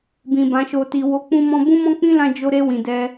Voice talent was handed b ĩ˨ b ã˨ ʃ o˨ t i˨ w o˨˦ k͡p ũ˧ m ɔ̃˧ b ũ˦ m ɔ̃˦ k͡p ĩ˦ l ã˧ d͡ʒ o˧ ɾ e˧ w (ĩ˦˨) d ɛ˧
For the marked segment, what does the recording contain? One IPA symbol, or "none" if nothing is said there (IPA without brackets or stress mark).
ĩ˨